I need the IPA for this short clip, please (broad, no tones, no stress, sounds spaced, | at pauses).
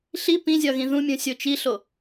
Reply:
ɬ i p ĩ zʲ ɒ ɣ ĩ ð ũ mʲ ũ sʲ o t͡ʃ i ɬ o